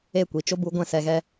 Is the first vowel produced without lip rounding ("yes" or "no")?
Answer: yes